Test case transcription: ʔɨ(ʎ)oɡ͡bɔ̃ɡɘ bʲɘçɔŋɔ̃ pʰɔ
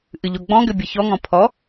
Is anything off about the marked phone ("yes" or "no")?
no